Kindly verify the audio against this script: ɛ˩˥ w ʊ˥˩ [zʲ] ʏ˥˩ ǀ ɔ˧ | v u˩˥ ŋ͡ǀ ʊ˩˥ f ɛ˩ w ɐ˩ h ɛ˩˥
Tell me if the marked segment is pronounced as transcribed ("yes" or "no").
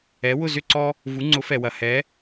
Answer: no